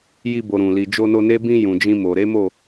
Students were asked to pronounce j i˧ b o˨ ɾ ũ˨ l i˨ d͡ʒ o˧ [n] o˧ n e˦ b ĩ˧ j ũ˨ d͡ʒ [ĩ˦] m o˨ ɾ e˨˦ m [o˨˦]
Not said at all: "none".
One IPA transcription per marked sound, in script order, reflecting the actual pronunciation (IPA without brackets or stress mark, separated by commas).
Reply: n, ĩ˧, o˦˨